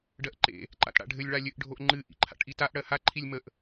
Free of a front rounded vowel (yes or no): yes